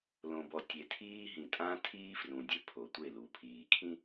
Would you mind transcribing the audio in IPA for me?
lõ˨bɔ˨tʲe˨ tʰiː˦ɦĩ˨ tʼã˦tʰiː˦frũ˨ dʲe˦ pʰo˨tʷe˦˨lu˨pʰiː˨ kʰĩ˦

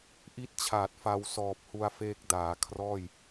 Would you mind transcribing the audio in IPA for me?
ʔi˥˩t̚t͡ɕʰaː˨˩t̚ fa˧w sɔː˨˩p̚hu˧a̯feː˦˥k̚ daː˩˦ kʰrɔː˥˩j

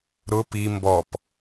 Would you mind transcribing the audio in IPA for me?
ɾʊ pi mbɔp

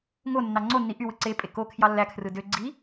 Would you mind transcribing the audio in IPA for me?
ŋonːɑ ŋ͡ǀonːi ʔywɯ ǀepʼe kokʰjɑ lːækʰrɯ dø ɡ͡ǀi

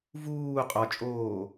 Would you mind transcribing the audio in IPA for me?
vuː qʼɒt͡ʃʼoː

